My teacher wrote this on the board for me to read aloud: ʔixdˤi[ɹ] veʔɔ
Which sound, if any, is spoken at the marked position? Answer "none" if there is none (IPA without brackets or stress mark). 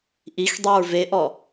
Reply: ɹ